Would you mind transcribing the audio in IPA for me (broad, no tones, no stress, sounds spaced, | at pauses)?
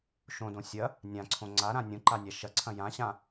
ʃ õ d õ sʲ ɐ | nʲ ã ǀʰ õ ŋ͡ǀ a ɾ ã nʲ õ ǃ a nʲ a ʃ ɐ ǀʰ ɐ̃ j ã ɕ ã